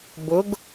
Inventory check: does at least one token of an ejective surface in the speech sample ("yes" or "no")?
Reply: no